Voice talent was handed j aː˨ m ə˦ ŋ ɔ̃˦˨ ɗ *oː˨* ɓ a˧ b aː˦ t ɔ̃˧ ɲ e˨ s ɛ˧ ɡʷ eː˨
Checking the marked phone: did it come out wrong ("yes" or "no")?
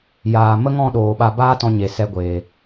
no